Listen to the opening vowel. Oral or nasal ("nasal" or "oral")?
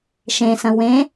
nasal